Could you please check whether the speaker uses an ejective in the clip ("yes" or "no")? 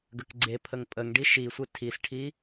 yes